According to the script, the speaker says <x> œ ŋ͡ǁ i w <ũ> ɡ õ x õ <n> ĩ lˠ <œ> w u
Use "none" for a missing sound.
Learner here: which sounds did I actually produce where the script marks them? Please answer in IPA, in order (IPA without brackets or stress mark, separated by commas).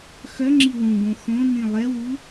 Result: x, ũ, n, ɛ